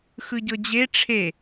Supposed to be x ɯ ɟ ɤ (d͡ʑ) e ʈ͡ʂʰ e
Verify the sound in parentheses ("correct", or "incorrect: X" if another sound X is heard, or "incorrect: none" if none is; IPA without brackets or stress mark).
correct